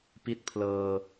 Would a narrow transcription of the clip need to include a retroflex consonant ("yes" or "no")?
no